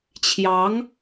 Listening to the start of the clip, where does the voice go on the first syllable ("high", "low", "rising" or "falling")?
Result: rising